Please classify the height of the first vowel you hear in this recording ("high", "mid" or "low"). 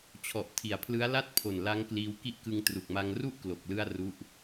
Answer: mid